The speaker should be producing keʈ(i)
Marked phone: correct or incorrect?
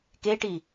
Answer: correct